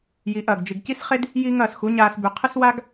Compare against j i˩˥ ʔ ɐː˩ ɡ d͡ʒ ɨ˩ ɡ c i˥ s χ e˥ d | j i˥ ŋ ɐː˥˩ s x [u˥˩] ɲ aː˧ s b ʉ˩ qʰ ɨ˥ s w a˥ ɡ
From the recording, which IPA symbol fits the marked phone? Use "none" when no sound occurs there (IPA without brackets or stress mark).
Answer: u˩˥